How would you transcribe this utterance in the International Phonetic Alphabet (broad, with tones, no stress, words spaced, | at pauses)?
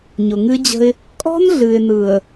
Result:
ɲʊ˨ŋɨ˦d͡ʑə̤˦ɪ̯ | kʼɔ̤˦nɮɨ˨ɪ̯nɯ˨ə̯